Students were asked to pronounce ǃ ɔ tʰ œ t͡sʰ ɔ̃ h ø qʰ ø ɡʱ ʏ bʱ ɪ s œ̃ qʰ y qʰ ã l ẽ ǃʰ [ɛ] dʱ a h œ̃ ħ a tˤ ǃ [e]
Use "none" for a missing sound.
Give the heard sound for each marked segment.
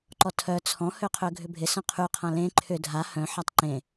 ʏ, ẽ

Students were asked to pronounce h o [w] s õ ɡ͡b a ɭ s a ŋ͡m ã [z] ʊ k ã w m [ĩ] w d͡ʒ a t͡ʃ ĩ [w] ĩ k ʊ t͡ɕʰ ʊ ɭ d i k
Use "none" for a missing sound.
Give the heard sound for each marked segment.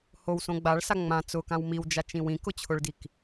w, t͡s, i, w

